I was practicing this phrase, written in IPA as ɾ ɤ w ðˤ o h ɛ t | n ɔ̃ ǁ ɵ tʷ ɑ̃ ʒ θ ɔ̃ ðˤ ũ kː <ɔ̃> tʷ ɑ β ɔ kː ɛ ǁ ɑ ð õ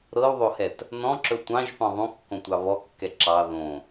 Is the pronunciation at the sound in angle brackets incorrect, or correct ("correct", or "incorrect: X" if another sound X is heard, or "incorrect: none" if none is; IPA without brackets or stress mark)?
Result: incorrect: õ